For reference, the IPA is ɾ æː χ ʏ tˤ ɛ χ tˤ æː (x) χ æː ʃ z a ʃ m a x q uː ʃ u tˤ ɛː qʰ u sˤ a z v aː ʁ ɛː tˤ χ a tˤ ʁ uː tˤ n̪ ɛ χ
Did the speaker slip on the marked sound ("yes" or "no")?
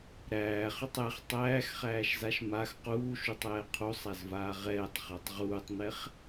no